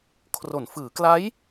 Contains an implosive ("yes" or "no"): no